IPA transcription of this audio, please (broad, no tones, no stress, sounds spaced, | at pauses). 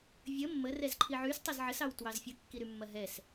vʲ ə mː ə r ɛ z ǃʰ i ʕ y s tˤ ɐ z ʕ ə s ɑ w t w ɑ z fʲ ə kː i ɾ y mː ɐ ɦ ɛ s